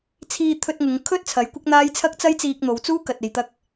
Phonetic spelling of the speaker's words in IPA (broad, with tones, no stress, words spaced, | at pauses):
t͡sʰiː˧t̪ʰɵ˧t̚ŋʊ˨˧ŋkʰɵ˥t̚ t͡sʰɐ˨˥jkʷɪ˥k̚n̪aː˥j t͡sʰɐ˥k̚t͡sɐ˥jt͡siː˧k̚ n̪o˨˧wt͡suː˥kɐ˨t̚ e˨jt̪ɐ˧k̚